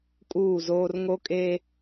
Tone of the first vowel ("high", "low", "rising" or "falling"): falling